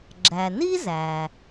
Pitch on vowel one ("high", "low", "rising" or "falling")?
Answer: low